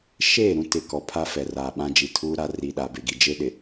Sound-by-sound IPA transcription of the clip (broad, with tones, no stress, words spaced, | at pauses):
ʃeː˦˨ɾũ˦tɪ˨kɔ˨ pʰa˦fɛ˨raː˨ ɓã˦d͡ʒi˨tʰuː˦ɾa˦ ri˨ɗa˨be˨ɡi˨ d͡ʒe˦ɗɪ˨